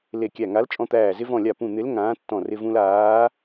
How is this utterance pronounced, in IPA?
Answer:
le˧˩kʲæ˧˩ŋa˨˥lt͡ʃʼɔ̃˧ t̪æː˧˩ zɪ˧vɔ̃˧˩lʲa˧˩ pũ˧˩n̪ɪ˨˥l ŋãː˨˥tːɔ̃˧˩rɪ˧vũ˧l aː˨˥

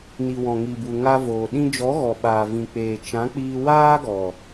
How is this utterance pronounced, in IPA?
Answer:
ni˨wɔ̃˨ŋi˨bu˨ ŋa˧voː˨ ɗĩ˧d͡ʒɔ˨˦ɣɔ˨ ɓaː˨vĩ˨k͡peː˨ t͡ʃã˨˦k͡piː˧ waː˦ɡɔ˨

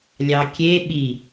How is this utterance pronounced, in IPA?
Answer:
lʲɑkʲe ɓi

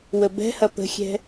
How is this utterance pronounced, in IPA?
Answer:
wəbɛ̤hɐ pə̤xʲɛ̤

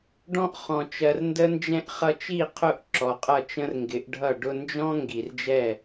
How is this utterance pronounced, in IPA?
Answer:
ɖɔ̃˧ʔχɔ̃˨t͡ʃɜ˨r ndə˦nd͡ʒɛ̃˦ʔ χʌ˧t͡ʃi˦˨ qʰʊ˦˨ʔǁɔ˨qʼʌ˦˨ t͡ʃə̃˦rŋɡɪ˨˦ʔɖʱʌ˦˨ ɖʊ˧nd͡ʒɔ̃˦ ŋɡi˨rd͡ʒɛ˦˨

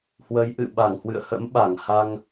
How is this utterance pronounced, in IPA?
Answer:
hwə˨˦jʔɨ̰˧˨ ɓa˧˩ŋhwɨ̰˧˨ə̯hə̰˧˥m ɓa˧˩ŋha˧ŋ

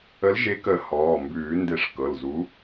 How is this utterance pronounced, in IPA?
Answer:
ə˨˥lʒe˨˥ kə˨˩˦ hɔː˩˧˩mbʉː˨˩˦ nde˨˩˦ʂ kɤ˩˧˩lzu˨˥

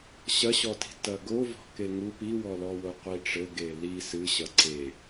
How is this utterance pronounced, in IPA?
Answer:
ɕɐɕɔti̤ tɐɡovɔ̤ keŋu piwɔlɔ woqʷiʈ͡ʂɘɡe li sɨɕɐ ǀe

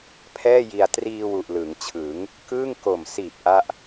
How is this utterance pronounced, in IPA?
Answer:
pʰɛː˥˩ji˧a̯ triː˧ wu˨˩ʔlɯ˩˦ŋt͡ɕʰɯ˩˦ŋ | kɯː˥˩ŋ ko˨˩msiː˨˩p̚ ʔa˥˩ʔ

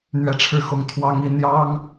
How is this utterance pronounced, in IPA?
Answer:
n̪ɥɛ˥˧ʈ͡ʂʰɻ̩˥˩xʊ˥ŋ t̪ʰwɑ˥ŋi˥ n̪jɑ˥ŋ

